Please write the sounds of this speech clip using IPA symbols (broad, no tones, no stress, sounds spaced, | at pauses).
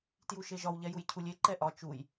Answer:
t j u ʃ e ʒ ɒ w ʎ ɛ j u j cʰ u lʲ e ǃ ɛ ʔ ɒ t͡ʃ u j